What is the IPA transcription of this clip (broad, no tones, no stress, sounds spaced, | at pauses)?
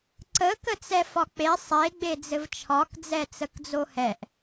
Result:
ǀ ə k ə t͡s ɛ f ɒ k͡p e sˤ e ɡ͡b e d͡z ɘ v t͡ʃʰ ɒ k d͡z ɛ t͡s ə k d͡z o h ɛ ʔ